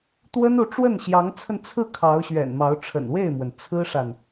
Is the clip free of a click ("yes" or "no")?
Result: yes